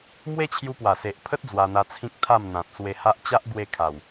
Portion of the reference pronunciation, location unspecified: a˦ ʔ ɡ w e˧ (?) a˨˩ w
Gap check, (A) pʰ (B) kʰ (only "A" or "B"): B